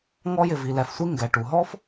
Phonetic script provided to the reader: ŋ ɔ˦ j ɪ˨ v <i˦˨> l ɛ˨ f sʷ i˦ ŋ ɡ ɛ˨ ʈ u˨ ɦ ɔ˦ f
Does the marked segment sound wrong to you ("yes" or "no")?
yes